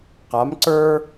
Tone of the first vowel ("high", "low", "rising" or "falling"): rising